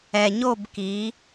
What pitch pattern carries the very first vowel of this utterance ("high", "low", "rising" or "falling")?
low